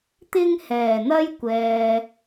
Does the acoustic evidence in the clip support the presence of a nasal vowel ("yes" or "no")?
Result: no